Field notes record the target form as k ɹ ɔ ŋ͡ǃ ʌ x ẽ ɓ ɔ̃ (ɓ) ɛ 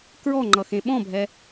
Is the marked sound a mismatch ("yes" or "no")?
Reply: yes